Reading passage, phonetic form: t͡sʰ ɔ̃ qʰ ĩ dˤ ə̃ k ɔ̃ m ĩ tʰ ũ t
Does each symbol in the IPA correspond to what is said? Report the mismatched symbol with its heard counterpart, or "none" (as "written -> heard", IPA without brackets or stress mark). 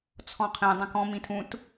none